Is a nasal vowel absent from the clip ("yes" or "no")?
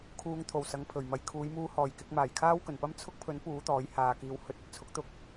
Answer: yes